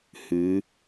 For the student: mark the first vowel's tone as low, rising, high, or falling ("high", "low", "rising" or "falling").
rising